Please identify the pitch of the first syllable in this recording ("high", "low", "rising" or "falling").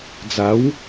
rising